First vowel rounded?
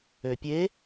yes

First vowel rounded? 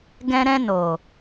no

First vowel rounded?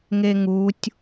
no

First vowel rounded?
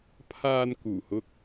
no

